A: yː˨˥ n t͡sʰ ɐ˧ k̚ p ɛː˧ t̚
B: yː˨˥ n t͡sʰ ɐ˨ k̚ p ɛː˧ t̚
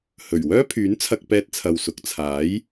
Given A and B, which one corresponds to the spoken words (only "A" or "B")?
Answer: A